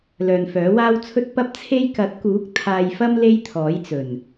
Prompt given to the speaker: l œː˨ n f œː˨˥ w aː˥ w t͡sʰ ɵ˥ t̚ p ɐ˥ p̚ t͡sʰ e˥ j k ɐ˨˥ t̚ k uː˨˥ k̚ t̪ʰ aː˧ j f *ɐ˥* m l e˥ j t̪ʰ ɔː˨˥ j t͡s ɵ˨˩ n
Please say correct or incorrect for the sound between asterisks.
correct